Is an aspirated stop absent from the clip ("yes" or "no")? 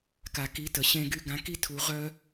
no